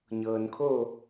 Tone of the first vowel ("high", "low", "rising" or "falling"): low